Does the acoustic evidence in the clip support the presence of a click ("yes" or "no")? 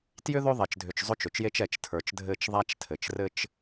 no